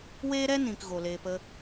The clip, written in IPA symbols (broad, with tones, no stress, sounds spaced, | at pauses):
w eː˦ ɾ ɛ˦ n ĩ˨ k ɣ o˨ l eː˧ p ə˦